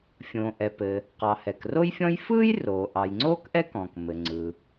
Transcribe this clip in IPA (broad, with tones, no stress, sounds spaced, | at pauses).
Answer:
fʲ õː˩ ʔ ɛ˩ p ɘ˩ | q ɑ˩ h ɛ˩ k r o˥ j fʲ ɔ̃˥ j f ɯː˥ j r oː˩ ʔ ɑ˩ j ŋ͡ǀ oː˥ k ʔ ɛ˥ k ɔ̃ː˩ k m ɘ˩ ŋ͡ǀ ɯ˩